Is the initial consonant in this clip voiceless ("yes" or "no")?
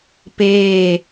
yes